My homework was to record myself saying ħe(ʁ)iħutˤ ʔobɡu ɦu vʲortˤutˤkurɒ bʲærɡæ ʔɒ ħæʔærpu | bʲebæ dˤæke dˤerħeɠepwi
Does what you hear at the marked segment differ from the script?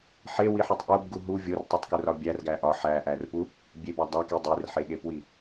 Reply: yes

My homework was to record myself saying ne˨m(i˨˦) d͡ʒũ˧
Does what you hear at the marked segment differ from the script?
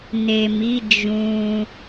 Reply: no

